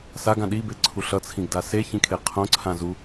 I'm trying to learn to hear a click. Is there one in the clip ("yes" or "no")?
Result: yes